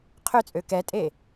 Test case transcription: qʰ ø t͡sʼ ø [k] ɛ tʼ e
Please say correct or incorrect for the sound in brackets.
correct